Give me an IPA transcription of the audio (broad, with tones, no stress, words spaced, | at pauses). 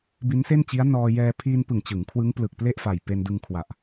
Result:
bi˦˥nse˥˩nt͡ɕi˦˥a̯nɔː˧ jɛː˧ pʰiː˧n pɯ˨˩ŋt͡ɕɯ˩˦ŋ kʰwɯ˦˥ŋplɯ˨˩k̚ple˥˩ʔ fa˨˩jpe˧ndɯ˧ŋ kʰwa˨˩ʔ